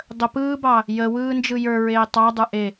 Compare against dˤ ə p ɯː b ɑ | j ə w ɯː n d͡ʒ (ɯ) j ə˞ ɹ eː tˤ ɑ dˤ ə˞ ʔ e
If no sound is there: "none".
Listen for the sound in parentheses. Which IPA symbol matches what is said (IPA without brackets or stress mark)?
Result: ɯ